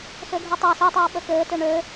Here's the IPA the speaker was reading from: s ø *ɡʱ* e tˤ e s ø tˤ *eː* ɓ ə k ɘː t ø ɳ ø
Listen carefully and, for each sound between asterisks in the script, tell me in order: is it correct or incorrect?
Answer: correct, correct

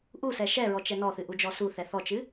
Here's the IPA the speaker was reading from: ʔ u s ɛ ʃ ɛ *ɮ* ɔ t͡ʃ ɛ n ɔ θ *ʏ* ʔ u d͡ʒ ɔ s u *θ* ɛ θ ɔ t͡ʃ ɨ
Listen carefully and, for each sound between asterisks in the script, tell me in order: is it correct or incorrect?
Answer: incorrect, incorrect, correct

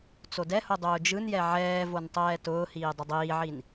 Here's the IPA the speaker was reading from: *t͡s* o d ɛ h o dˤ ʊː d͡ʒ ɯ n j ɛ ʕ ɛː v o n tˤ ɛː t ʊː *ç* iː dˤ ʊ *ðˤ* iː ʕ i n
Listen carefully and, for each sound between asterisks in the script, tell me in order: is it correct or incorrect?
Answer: correct, incorrect, incorrect

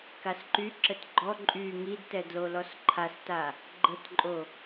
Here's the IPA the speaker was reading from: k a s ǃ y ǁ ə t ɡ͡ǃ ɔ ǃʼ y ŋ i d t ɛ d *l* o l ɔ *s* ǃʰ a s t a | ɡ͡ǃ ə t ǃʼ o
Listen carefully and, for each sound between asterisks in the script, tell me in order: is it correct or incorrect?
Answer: correct, correct

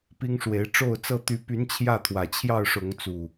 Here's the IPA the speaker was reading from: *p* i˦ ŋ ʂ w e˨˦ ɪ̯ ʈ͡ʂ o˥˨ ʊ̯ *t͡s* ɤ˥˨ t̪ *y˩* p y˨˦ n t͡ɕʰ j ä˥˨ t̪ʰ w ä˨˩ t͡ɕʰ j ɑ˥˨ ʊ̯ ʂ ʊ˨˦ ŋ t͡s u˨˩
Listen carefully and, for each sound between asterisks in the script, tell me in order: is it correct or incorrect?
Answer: correct, correct, incorrect

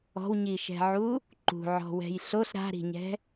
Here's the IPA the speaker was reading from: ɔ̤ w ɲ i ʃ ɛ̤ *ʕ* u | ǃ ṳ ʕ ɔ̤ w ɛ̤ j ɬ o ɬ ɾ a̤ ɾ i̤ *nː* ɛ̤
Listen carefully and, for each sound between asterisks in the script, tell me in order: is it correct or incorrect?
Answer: correct, incorrect

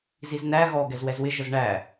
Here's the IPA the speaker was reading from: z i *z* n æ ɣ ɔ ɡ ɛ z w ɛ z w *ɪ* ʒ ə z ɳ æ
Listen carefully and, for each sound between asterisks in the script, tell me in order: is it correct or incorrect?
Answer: correct, correct

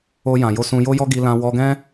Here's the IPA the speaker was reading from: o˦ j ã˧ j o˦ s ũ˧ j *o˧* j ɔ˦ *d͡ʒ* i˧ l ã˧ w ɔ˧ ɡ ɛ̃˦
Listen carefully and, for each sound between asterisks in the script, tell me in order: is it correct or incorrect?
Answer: incorrect, incorrect

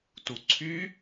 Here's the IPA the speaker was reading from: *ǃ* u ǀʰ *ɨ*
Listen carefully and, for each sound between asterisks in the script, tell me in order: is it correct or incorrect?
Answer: incorrect, incorrect

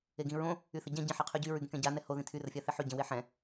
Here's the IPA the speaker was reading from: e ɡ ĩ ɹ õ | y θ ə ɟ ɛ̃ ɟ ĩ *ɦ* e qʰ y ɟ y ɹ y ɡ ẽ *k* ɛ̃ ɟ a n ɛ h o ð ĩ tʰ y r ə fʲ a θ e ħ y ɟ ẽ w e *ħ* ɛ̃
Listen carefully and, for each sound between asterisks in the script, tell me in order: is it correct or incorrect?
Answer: incorrect, correct, correct

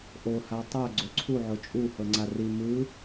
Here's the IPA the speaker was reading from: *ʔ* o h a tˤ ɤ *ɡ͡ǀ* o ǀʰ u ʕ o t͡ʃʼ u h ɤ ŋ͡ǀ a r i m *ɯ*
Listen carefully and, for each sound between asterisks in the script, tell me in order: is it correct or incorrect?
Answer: correct, correct, correct

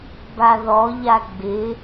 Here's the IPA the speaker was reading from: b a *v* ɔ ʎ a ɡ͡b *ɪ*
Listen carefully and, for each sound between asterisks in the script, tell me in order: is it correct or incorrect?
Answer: incorrect, correct

